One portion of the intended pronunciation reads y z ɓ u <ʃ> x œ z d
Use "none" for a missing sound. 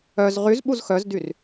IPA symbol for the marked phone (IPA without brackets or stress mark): z